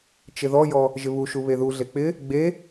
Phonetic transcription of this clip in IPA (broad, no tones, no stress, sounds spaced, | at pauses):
t͡ʃ ɪ ð ɔ j ɔ | ʒ ɪ β u ʃ u β e ð u ɮ e k͡p ɪ | ɡ͡b e